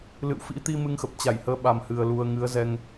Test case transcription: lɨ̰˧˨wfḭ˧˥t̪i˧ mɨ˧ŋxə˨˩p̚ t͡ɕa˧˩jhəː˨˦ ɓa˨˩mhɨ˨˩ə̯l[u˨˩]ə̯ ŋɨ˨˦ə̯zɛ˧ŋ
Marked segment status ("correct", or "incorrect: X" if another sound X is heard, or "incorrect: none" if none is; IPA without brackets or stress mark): correct